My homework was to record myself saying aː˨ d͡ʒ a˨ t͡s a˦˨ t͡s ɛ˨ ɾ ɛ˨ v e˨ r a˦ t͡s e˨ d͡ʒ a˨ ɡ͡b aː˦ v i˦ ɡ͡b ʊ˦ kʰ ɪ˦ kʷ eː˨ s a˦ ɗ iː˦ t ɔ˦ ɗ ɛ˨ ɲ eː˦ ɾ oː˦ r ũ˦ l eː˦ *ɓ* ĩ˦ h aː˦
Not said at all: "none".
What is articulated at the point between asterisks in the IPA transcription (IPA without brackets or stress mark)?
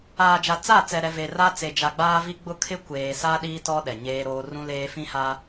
f